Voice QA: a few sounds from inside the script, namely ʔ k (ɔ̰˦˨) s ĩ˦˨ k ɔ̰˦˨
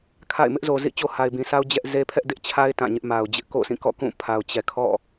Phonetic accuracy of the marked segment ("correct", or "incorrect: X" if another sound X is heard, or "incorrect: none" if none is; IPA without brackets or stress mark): incorrect: o̰˦˨